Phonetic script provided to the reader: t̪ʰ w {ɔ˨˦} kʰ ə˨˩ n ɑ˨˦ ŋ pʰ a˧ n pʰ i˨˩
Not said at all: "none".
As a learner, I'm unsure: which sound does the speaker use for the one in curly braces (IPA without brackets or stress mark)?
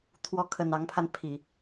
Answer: ɔ˨˦